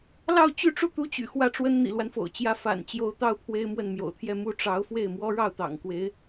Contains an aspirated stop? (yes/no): yes